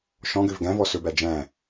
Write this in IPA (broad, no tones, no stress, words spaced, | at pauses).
ʃɔ̃ɡøv ɡæ̃vɔ sɵbæ d͡ʒæ̃